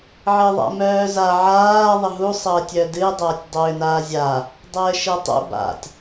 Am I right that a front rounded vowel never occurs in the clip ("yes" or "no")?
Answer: no